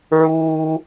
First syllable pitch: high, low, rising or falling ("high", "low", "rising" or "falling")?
high